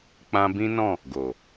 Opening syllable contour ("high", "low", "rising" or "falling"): high